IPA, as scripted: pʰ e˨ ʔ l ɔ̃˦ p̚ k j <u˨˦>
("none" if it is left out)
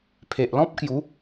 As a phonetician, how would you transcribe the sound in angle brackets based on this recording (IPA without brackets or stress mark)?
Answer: u˨˦